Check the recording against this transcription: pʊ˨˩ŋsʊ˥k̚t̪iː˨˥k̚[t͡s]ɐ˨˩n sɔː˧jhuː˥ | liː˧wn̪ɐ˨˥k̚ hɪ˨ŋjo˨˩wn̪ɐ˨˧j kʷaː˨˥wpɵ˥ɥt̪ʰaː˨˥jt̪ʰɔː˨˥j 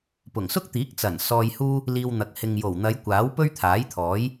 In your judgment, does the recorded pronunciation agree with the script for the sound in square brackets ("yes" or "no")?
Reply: yes